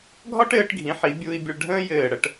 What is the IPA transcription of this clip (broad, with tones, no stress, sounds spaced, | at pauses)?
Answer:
ɡʱ ɒ˥ ʈ ɘː˩˧ ʈ ɡʱ ĩ˩˧ ħ i˩˧ bʲ u˧ i̯ bʲ ə˧ ɭ ɖʱ ə̃ː˥ j ɘː˧˩ ɽ ə˥˧ ʈ